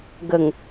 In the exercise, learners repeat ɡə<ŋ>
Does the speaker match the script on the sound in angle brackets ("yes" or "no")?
yes